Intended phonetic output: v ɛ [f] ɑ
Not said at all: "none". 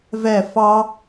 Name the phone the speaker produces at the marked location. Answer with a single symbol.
f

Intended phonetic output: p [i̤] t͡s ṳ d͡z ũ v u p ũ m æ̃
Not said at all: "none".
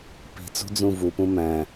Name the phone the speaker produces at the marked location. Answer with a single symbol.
i̤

